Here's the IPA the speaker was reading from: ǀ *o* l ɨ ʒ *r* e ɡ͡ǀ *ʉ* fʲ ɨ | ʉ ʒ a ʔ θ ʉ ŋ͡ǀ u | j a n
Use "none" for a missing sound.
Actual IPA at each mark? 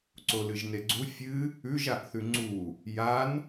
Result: o, n, u

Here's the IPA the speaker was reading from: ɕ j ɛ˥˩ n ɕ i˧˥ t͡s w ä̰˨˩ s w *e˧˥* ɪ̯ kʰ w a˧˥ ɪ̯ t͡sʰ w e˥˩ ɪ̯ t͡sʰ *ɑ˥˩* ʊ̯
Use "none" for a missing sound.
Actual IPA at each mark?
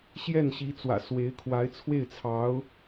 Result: e˧˥, ɑ˧˥

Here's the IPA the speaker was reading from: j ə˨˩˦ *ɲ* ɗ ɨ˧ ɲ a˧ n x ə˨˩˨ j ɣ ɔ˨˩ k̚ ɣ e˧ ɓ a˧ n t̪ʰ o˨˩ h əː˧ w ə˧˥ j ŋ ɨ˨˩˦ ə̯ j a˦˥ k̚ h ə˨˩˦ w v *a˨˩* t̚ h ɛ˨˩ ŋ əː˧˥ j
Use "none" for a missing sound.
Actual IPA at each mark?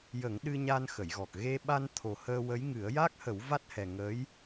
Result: ŋ, a˦˥

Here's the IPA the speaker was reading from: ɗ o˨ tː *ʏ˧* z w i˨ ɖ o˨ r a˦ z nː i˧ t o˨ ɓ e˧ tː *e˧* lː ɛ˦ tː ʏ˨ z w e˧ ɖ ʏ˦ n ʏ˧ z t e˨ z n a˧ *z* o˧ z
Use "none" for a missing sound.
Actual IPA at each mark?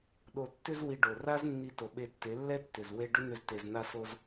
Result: ʏ˧, e˨˦, s

